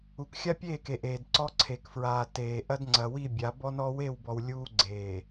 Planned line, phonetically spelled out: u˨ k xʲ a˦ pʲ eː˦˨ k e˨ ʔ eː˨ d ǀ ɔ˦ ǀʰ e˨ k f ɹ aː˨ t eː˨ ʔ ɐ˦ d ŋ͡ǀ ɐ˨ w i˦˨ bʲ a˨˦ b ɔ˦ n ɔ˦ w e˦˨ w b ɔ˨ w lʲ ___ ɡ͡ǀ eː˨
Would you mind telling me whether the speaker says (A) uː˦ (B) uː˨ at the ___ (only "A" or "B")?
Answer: A